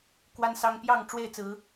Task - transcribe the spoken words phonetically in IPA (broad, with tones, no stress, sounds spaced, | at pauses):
k w a˦ n s ɑ˦ ŋ p j ɑ˥˨ ŋ ʈ͡ʂ w e˥˨ ɪ̯ t͡s ɹ̩˨˦